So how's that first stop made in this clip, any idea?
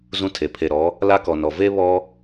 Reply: aspirated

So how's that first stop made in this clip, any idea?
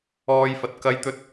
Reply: plain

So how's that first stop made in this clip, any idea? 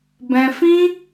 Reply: plain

